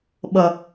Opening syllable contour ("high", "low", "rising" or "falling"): low